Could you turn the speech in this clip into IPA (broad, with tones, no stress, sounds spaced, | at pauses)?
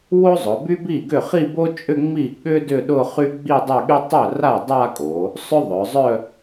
w o˥ zˤ ʊ˩˧ b y˥ b i˥˩ ɡ ʏ˥˩ χ i˥˧ b o˥ t͡ʃʼ ʏ˥˧ ŋ͡m i˥˩ ɠ ʏ˥ d ʏ˥˧ ɗ ʊ˥˧ χ y˥ ɡ͡b i˥˧ dˤ œ˥˧ ɠ y˥ tˤ œ˥˩ r a˥˩ dˤ a˥˧ kʼ o˩˧ | sˤ ʏ˥ ðˤ œ˩˧ zˤ œ˥˧